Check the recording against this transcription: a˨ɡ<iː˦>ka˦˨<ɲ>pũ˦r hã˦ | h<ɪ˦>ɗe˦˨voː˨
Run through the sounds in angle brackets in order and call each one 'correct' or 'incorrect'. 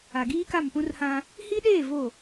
correct, incorrect, incorrect

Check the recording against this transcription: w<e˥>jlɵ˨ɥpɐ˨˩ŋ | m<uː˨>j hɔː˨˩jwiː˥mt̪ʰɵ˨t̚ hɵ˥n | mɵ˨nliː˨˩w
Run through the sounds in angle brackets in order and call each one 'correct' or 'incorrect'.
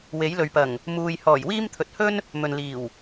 incorrect, correct

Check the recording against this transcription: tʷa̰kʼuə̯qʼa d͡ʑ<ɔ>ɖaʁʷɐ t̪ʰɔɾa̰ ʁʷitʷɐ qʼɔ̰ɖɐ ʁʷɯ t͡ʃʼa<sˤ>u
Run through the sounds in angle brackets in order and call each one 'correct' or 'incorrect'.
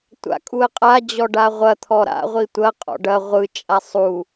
correct, correct

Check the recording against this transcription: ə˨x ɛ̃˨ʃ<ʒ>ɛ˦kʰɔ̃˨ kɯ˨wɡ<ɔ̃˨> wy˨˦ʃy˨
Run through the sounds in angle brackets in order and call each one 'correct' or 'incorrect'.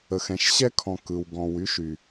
incorrect, correct

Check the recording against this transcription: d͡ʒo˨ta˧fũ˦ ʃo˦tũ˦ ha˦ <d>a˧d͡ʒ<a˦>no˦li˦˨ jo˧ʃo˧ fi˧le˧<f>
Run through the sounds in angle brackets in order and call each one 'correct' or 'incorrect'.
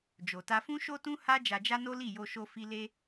incorrect, correct, incorrect

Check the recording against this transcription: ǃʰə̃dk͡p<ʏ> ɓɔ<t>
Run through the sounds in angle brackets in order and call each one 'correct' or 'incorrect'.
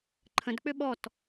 correct, correct

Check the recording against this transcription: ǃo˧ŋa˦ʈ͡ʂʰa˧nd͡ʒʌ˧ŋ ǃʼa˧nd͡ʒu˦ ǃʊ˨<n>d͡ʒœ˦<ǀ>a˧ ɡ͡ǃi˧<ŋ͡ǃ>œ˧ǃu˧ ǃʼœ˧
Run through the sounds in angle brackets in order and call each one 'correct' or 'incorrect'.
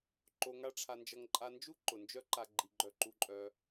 correct, incorrect, incorrect

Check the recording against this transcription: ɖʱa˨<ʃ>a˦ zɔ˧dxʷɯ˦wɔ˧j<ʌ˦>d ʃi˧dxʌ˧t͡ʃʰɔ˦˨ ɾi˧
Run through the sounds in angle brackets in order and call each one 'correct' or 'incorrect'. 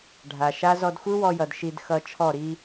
correct, incorrect

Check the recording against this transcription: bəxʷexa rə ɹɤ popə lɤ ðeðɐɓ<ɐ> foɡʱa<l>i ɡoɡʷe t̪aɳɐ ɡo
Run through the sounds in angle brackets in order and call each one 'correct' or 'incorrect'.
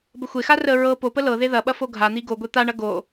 correct, incorrect

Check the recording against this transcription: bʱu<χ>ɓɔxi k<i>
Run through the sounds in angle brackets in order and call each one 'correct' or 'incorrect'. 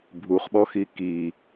correct, correct

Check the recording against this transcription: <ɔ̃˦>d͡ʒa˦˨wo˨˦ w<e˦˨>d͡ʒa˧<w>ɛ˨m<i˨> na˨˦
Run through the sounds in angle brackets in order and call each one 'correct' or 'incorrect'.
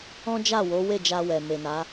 correct, correct, correct, incorrect

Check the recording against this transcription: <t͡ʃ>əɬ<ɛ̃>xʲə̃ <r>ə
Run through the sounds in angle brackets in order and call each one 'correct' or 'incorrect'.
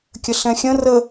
incorrect, correct, correct

